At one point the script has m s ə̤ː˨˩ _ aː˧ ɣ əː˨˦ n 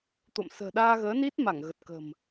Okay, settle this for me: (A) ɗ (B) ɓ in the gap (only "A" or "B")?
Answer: A